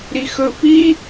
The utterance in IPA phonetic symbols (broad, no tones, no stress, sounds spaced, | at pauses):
ɾ i x ɵ f i